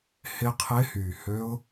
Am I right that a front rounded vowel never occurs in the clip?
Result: no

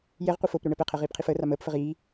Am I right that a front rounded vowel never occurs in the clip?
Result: yes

